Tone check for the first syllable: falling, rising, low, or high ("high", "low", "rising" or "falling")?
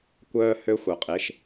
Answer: high